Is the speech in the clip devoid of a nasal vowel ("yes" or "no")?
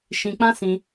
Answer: no